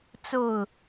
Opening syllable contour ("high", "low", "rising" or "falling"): falling